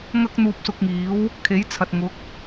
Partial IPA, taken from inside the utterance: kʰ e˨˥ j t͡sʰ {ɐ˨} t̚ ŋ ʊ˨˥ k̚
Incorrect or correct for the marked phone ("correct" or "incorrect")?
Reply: correct